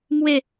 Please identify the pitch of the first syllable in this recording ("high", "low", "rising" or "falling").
falling